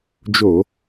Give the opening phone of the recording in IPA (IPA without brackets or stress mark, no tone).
d͡ʒ